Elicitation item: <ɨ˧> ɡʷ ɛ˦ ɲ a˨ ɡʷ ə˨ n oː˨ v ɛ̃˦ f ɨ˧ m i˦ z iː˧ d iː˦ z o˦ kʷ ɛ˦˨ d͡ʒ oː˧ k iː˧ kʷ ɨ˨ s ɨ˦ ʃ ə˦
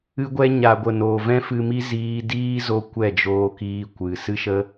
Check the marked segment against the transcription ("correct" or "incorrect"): incorrect